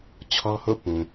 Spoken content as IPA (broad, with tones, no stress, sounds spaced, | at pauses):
t͡ɕʰ ɔ˦ h o̰˦˨ p ũ˨